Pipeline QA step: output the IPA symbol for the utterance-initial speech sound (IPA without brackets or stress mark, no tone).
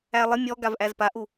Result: æ